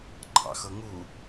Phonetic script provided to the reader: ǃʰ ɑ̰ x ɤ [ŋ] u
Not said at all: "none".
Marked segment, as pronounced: ŋ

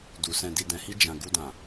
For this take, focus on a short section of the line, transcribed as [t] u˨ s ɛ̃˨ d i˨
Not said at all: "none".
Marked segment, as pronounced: d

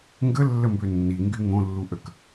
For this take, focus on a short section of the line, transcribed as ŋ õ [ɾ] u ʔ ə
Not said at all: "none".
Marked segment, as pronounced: lː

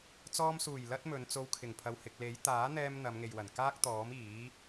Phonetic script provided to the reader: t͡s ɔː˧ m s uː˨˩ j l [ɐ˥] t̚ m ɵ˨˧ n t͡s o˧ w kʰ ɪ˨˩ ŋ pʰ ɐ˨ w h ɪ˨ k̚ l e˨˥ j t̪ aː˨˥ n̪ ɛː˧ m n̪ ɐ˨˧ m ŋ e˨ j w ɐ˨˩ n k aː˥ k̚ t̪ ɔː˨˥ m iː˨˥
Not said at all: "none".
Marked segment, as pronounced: ɐ˥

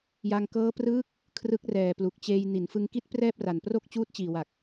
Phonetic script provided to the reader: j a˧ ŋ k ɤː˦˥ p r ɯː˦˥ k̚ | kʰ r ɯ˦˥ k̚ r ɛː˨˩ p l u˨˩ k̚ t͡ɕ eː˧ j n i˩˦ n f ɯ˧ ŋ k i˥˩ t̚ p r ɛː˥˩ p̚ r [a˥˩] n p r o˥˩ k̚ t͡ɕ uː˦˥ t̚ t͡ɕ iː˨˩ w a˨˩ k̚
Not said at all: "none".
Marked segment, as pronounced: a˨˩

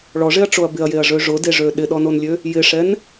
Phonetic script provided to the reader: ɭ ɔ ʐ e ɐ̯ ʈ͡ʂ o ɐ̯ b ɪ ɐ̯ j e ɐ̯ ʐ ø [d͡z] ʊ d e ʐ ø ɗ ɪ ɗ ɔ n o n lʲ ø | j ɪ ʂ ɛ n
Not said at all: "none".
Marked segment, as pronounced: ʐ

